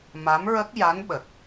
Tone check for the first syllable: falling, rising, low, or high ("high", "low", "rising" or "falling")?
rising